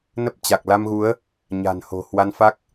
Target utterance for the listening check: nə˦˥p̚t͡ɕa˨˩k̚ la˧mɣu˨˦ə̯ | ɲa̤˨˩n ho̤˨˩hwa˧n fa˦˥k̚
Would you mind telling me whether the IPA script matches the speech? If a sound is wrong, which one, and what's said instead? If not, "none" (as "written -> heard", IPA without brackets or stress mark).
none